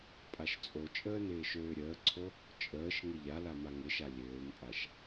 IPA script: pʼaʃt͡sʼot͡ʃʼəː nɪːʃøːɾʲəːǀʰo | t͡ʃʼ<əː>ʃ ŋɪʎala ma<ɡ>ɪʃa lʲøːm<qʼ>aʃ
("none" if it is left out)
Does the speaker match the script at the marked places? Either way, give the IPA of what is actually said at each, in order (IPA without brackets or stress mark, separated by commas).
əː, ŋ, pʼ